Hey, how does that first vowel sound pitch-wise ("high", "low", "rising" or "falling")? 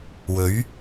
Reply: rising